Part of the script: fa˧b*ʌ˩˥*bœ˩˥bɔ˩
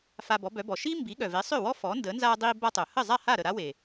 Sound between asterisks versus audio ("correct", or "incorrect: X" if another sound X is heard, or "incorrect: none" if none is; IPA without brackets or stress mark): incorrect: ɔ˩˥